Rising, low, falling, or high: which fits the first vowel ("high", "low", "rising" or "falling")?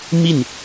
falling